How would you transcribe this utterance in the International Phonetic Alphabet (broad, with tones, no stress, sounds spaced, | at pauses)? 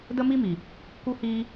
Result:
d ə˦ m i˦ m i˨ | k u˧ h iː˧